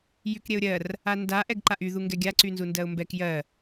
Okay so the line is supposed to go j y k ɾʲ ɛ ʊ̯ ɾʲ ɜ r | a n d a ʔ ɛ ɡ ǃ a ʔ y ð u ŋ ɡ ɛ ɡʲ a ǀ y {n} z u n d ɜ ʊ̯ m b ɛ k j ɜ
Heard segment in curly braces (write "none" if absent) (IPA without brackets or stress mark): n